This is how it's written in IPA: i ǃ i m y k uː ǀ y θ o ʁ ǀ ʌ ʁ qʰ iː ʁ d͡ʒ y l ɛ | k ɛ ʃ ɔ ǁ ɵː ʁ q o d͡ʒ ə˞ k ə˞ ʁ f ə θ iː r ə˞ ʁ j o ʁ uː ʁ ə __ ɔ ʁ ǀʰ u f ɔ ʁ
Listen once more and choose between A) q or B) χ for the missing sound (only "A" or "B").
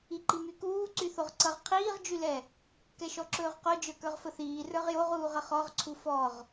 B